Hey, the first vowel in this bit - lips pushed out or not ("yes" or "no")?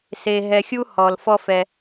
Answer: no